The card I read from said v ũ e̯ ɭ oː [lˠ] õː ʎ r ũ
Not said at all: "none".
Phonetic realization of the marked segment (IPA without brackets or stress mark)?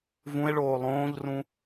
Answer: lˠ